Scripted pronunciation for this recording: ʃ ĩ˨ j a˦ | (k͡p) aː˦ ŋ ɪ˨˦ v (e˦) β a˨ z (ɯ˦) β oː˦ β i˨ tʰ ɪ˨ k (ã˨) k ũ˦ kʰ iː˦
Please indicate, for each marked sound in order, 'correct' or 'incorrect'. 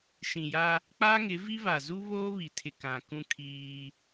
correct, incorrect: i˦, incorrect: u˦, correct

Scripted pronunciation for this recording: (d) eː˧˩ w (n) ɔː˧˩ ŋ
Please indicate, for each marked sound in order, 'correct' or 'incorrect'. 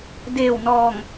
correct, correct

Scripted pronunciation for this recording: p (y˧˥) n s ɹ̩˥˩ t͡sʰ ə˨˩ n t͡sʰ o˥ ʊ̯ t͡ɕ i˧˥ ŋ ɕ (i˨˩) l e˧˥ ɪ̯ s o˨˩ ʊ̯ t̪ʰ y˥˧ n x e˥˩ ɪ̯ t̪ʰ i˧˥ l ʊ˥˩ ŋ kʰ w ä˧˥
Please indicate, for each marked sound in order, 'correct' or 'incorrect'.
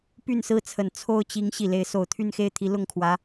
incorrect: y˥˧, correct

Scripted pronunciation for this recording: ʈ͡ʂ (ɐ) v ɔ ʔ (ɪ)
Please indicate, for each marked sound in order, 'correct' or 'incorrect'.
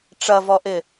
correct, correct

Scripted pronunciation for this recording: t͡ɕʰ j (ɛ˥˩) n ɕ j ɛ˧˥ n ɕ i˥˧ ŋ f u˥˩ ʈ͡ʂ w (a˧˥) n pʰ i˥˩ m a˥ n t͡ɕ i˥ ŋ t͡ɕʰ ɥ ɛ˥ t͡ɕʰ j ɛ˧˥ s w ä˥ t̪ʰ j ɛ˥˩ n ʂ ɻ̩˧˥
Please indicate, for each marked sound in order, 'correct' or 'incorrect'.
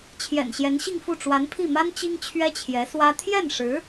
incorrect: ɛ̰˨˩, correct

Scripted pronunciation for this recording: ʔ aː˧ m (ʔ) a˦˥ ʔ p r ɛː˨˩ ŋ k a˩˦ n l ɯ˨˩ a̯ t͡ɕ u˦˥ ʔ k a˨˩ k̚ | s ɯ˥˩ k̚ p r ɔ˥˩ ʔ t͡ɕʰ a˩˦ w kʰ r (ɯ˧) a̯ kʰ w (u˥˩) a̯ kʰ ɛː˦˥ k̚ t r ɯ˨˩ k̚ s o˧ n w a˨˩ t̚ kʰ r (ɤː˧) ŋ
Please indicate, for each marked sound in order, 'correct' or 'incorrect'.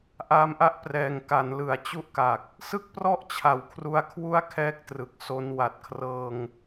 correct, incorrect: u˧, correct, correct

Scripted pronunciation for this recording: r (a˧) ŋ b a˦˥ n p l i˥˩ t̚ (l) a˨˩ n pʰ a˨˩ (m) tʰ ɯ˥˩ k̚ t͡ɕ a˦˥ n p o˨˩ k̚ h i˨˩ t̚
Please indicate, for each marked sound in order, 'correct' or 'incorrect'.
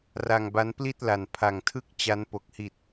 correct, correct, incorrect: ŋ

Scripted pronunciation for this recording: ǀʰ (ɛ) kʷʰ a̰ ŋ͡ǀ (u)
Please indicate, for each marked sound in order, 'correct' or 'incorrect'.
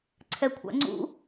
correct, incorrect: ṵ

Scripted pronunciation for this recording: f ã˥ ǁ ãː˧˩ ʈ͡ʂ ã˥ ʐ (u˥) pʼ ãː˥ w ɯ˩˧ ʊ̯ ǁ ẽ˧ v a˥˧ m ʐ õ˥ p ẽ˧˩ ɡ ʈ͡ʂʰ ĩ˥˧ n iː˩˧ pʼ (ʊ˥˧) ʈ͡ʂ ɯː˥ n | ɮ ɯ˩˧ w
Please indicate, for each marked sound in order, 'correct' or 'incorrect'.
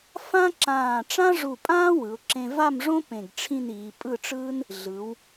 incorrect: u˧˩, incorrect: ɯ˥˧

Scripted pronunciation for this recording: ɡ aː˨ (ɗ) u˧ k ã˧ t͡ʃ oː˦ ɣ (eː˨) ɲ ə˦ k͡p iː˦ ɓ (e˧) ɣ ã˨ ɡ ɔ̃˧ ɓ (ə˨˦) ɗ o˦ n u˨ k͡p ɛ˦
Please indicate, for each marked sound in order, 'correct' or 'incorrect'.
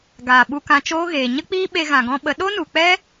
incorrect: ɓ, correct, correct, correct

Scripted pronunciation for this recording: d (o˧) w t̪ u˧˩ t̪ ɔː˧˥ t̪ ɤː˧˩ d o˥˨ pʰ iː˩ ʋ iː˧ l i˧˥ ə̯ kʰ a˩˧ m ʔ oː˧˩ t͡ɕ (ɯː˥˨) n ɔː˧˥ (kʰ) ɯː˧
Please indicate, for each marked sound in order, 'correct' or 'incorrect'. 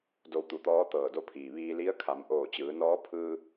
correct, incorrect: ɯː˩˧, incorrect: pʰ

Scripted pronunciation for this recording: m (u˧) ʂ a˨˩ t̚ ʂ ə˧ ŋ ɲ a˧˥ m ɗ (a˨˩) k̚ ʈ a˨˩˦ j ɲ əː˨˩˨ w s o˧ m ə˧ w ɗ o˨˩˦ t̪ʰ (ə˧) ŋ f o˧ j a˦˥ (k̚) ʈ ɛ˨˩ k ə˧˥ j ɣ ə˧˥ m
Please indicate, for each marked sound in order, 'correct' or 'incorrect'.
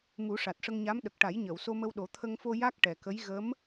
incorrect: u˨˩˦, incorrect: ə˨˩, correct, correct

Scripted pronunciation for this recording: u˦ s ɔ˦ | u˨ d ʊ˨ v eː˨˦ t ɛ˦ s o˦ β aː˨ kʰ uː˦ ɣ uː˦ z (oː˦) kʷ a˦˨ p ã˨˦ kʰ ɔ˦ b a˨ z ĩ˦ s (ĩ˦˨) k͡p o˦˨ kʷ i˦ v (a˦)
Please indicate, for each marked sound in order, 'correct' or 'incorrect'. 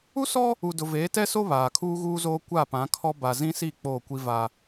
correct, incorrect: i˦˨, correct

